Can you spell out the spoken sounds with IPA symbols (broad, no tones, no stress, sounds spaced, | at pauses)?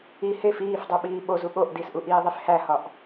i h e f iː f dˤ u ɓ iː ɓ o z u ɠ o ʔ d i s ʔ u ʔ iː ðˤ i f h æ h ɒ ʔ